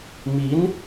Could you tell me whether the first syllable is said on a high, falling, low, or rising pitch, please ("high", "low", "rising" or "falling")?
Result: rising